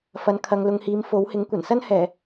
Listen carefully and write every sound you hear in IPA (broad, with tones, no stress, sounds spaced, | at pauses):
f ɐ˨˧ n kʰ ɐ˨ ŋ l ʊ˨ ŋ h iː˨˧ m f o˨˥ w h ɪ˨˥ ŋ kʷ ɐ˨˩ n s ɐ˥ n h ɛː˨˩